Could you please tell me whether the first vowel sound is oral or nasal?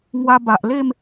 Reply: oral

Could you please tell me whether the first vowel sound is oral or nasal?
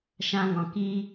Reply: nasal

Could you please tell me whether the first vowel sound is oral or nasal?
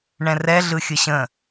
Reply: nasal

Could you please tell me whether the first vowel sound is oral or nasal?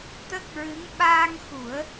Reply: oral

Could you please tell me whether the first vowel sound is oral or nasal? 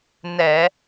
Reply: oral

